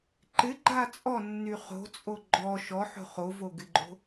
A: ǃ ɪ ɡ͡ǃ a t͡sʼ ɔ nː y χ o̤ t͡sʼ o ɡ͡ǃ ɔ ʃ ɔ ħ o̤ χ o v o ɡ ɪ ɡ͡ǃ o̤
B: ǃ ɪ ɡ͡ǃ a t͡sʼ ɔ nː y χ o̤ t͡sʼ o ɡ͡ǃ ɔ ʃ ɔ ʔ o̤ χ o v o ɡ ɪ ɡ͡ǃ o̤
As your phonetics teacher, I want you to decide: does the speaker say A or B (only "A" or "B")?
A